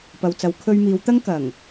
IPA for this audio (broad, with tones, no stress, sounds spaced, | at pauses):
p ɐ˨ w t͡s ɐ˨˧ w kʰ ɵ˧ ɥ m iː˨˧ w t̪ ɐ˥ ŋ k ɐ˨˩ ŋ